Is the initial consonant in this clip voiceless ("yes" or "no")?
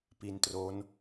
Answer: yes